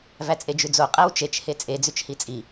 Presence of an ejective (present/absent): present